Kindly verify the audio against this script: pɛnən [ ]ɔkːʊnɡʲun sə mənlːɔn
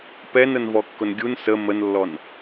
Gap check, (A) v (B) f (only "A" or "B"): A